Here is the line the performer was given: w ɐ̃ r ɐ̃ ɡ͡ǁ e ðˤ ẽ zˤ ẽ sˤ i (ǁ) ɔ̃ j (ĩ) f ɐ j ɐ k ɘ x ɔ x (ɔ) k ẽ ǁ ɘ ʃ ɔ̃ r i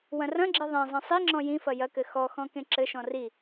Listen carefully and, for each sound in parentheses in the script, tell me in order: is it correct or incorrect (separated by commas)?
incorrect, correct, incorrect